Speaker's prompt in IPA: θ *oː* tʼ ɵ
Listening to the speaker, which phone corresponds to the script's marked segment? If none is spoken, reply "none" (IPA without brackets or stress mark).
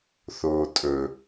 oː